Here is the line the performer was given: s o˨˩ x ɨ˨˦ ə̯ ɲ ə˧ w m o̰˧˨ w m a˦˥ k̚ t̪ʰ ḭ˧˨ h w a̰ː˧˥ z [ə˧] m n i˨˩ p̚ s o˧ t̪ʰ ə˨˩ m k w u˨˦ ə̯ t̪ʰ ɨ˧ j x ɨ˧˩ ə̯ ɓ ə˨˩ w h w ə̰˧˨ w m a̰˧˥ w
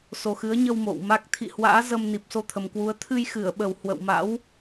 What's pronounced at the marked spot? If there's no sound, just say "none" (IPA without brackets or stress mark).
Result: ə˧